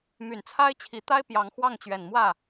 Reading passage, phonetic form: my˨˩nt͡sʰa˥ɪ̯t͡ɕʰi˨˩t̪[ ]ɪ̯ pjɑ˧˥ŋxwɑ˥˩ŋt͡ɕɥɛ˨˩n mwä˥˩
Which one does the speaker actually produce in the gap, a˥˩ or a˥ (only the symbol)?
a˥